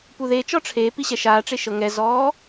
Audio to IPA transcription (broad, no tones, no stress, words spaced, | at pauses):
puðet͡ʃɔ ʈ͡ʂʰe piɕɛʃaːʈ͡ʂe ʃɤŋɛzɔː